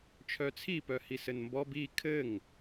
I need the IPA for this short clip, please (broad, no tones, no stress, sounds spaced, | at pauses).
t͡ʃʰ œ t͡sʰ i p œ h i s ɘ n m b ɔ b i kʰ ɘ ŋ